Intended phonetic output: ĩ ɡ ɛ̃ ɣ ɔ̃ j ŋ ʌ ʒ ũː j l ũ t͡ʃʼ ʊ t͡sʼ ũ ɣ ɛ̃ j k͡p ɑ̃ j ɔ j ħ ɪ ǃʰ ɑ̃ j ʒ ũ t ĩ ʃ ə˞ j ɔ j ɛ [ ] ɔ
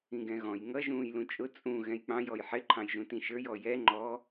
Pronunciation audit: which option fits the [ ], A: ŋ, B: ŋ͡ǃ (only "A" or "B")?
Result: B